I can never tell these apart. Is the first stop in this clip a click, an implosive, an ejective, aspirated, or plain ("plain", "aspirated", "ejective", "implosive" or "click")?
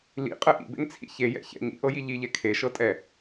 ejective